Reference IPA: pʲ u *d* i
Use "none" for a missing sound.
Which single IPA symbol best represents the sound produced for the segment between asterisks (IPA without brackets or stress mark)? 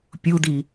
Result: d